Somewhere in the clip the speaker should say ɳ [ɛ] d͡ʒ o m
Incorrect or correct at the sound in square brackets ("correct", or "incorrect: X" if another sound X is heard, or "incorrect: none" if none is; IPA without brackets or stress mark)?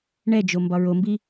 correct